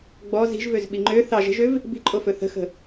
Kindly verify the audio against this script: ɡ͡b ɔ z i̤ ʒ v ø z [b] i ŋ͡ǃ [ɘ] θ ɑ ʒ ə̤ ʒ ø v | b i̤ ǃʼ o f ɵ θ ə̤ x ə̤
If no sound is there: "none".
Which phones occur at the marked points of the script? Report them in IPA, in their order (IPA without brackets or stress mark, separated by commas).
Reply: ɓ, ø